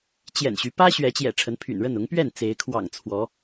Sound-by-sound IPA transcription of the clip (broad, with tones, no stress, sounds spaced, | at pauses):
t͡ɕ j ɛ̰˨˩ n ɕ y˨˦ p ä˦ ɕ ɥ ɛ˨˦ t͡ɕ j ɛ̰˨˩ ʈ͡ʂʰ ə˨˦ n pʰ y̰˨˩ n ɻ ə˥˨ n ʊ˨˦ ŋ p ɥ ɛ˥˨ n t͡s e˨˦ ɪ̯ kʰ w ɑ̰˨˩ ŋ t͡sʰ w ɔ˨˦